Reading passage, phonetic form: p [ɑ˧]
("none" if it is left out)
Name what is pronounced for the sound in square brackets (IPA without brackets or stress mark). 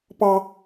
ɑ˧